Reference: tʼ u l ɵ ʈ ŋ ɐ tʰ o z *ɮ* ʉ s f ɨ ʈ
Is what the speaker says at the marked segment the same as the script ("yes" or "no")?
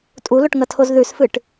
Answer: no